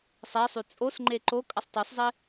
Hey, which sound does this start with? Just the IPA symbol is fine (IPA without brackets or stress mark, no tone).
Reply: sˤ